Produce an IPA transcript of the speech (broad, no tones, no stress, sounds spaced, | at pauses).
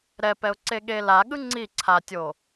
ɾ ɛ p ɛ ʊ̯ ǀ e ɠ e l a ɠ ɯ ŋ͡ǀ i ǀʰ a tʲ o